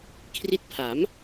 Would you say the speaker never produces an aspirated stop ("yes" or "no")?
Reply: no